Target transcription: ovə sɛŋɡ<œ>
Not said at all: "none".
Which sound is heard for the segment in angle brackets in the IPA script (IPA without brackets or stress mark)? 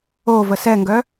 œ